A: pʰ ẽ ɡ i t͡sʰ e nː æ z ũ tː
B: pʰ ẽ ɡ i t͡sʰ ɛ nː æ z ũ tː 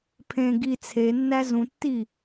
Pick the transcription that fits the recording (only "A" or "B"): A